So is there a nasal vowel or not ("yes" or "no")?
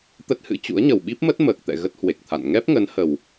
no